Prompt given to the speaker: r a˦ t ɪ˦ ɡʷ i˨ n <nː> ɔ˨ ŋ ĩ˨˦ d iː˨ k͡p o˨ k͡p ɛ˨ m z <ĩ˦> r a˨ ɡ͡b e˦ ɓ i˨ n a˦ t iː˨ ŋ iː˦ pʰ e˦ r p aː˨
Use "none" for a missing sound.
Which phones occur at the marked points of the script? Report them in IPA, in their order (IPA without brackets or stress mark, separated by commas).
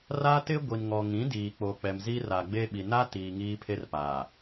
ŋ, i˦